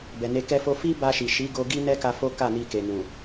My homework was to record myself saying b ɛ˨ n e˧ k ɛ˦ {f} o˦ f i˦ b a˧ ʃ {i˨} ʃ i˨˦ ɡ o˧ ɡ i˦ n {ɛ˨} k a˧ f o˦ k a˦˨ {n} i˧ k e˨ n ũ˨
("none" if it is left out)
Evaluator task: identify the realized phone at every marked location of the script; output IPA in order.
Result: f, i˨, ɛ˦, n

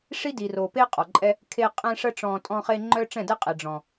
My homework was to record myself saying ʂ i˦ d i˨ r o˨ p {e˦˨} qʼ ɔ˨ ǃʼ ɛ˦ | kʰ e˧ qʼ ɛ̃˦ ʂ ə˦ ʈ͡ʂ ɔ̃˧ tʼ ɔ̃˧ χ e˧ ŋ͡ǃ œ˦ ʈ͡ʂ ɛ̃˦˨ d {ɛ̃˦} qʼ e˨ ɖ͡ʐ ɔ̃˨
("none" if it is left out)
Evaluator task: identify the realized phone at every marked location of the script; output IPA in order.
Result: e˦, ɛ˦

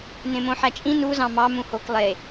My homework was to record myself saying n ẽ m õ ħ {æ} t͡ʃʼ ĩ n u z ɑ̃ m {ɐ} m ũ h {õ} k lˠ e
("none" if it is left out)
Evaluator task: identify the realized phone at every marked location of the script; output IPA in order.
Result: æ, ɑ, o

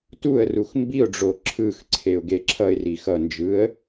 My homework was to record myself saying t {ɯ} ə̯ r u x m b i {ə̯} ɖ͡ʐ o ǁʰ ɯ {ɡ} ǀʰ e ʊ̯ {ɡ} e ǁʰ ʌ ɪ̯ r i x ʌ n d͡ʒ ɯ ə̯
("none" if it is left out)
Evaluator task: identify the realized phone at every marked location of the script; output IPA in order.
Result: u, ʊ̯, x, ɡ

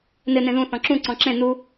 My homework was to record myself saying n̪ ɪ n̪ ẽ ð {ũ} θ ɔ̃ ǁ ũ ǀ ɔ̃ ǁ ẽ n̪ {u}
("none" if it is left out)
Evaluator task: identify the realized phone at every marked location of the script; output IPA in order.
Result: ũ, u

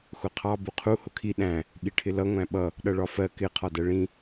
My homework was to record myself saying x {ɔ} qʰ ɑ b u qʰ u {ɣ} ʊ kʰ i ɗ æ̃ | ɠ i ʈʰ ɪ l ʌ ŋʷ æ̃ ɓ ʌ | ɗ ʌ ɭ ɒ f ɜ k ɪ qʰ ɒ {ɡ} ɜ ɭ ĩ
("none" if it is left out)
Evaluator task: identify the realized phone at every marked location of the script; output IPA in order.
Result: ʊ, h, d

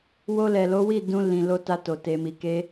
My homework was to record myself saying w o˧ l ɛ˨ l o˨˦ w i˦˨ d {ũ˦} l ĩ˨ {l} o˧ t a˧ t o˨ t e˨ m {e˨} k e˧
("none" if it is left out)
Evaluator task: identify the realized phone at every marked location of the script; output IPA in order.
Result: ũ˧, l, i˨

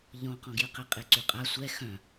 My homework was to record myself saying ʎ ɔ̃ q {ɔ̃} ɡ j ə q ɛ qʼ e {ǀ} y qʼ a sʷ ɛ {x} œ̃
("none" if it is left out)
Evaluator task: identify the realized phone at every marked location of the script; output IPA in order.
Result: ɔ̃, ǀ, x

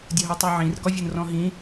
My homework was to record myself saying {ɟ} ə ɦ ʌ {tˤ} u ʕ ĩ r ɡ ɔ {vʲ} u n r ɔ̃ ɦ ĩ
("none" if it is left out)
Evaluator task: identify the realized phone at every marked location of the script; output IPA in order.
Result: dʲ, tˤ, vʲ

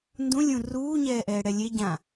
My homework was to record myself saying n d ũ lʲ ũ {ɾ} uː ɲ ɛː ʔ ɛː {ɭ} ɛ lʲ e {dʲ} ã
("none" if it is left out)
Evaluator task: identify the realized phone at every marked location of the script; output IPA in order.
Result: r, ɽ, ɟ

